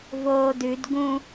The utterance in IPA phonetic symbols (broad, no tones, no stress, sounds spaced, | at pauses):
v oː d ʉ d ɡ ũ